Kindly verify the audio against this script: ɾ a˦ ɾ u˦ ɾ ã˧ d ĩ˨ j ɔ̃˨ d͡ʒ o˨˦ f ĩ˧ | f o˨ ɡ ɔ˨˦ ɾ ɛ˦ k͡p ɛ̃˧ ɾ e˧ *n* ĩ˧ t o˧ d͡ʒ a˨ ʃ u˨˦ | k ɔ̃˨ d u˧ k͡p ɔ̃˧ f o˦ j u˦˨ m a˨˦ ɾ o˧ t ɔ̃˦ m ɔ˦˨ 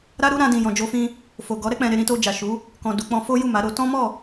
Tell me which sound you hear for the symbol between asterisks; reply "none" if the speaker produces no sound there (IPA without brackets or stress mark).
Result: ɾ